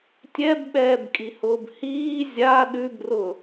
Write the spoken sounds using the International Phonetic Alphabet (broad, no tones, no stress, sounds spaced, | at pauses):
tʲ ɛ b ɓ ɛː b kʼ i h ʊː b h iː zʲ a ɗ ʉ b r ʊ